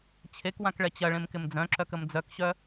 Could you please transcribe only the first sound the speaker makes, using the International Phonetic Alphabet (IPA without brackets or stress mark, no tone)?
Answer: t͡ɕʰ